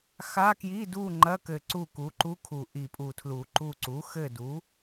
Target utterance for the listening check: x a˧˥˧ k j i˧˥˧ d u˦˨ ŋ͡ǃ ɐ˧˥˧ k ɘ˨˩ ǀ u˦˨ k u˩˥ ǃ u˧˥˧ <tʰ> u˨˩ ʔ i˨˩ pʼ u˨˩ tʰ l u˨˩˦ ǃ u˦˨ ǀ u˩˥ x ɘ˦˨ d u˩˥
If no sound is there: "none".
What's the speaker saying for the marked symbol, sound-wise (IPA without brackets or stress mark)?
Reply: kʰ